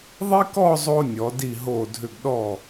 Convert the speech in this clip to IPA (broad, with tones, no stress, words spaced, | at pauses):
ðˤi˥kɔ˥˧zˤo˧ nʲɔ˩˧di˧˩ɦo˧˩dʱʏ˧˩ɡ ɗɔ˧˩